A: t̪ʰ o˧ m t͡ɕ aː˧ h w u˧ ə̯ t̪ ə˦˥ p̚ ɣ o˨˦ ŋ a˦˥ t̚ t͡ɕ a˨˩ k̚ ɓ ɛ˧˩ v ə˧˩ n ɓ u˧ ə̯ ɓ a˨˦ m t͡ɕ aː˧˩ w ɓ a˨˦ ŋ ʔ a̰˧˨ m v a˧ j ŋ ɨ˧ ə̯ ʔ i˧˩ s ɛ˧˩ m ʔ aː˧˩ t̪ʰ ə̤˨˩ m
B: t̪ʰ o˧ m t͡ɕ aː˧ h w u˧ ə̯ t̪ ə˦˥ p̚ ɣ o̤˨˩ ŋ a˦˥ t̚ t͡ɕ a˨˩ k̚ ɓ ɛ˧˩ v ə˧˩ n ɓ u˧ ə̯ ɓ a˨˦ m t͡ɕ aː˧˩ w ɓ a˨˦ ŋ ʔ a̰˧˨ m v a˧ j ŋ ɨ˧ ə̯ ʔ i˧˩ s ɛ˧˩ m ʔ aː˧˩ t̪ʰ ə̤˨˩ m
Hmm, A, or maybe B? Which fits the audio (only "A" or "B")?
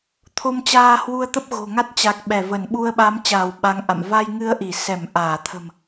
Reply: B